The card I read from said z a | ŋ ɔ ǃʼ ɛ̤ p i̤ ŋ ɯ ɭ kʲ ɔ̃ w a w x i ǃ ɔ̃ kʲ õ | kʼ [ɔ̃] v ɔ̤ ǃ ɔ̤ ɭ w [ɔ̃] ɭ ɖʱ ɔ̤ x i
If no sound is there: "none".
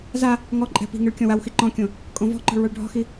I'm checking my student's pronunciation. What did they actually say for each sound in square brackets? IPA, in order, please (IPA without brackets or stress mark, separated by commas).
õ, ɔ